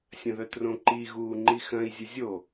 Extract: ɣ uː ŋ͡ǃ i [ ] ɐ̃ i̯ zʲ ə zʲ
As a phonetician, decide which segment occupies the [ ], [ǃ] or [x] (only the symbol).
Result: x